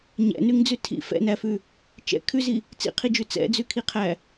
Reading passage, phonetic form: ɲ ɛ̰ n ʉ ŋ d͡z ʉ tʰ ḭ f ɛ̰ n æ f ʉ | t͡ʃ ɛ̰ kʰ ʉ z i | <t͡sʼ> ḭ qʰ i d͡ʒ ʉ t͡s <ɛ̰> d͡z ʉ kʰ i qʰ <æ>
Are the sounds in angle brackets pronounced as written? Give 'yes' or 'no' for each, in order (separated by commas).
no, yes, yes